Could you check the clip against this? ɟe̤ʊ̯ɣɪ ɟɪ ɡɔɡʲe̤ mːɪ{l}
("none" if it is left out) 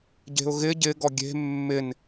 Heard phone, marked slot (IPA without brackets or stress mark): n